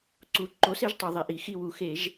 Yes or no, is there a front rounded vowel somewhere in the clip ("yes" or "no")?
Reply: no